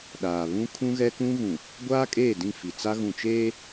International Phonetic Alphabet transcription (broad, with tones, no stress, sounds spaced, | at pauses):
ɗ aː˨ β ũ˦ kʰ ũ˦ ɣ ɛ˦ k ũ˦ ɣ ũ˨ | ɡʷ aː˦ kʼ eː˦˨ d ĩ˦˨ f i˨ t͡s a˦ ɣ ũ˨ t͡ʃ eː˦